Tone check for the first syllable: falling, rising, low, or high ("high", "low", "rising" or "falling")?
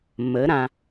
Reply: rising